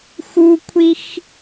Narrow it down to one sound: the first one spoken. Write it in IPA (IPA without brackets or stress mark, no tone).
x